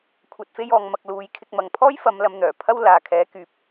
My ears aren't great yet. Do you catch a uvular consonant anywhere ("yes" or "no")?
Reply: no